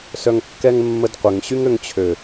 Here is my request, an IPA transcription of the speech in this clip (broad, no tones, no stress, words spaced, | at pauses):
sœŋkːɛŋmːədqʷəŋ ɕyŋøŋt͡ɕʰø